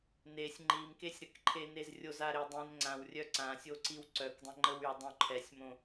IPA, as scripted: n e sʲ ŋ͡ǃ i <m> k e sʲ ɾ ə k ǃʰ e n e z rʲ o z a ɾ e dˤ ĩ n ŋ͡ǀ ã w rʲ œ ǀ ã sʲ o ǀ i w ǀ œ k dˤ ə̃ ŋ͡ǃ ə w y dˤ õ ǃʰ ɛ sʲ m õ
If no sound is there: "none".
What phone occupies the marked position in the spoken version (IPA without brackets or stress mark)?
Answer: m